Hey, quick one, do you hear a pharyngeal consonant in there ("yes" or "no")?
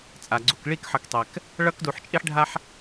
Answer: yes